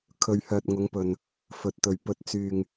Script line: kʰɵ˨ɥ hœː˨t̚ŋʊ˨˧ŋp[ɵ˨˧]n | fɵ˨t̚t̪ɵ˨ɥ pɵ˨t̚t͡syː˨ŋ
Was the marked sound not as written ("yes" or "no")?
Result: yes